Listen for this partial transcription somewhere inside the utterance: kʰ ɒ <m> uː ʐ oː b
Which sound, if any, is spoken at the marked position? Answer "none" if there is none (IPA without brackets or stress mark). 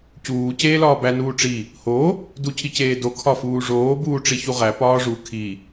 f